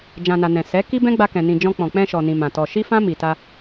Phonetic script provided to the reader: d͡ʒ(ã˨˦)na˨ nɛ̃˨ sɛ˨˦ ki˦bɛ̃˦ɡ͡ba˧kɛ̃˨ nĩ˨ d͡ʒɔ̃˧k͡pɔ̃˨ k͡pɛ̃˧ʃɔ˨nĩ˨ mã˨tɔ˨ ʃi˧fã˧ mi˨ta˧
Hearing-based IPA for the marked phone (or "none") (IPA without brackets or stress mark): ã˨